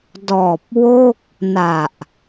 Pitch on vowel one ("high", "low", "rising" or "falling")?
low